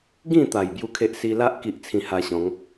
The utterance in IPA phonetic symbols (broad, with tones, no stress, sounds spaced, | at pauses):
ɡ ĩ˥˧ t̪ a˨˩ j b j u˦ kʰ e˦ ʔ s i˧ l a˦ ʔ k i˦ ʔ t͡sʰ ĩ˧ h a˧ ɕ ɔ̃˨˦ ŋ